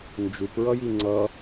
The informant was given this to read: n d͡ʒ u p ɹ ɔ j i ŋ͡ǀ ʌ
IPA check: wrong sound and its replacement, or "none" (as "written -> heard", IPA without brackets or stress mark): ɔ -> ʌ